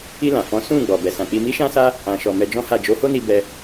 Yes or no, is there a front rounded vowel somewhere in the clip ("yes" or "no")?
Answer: no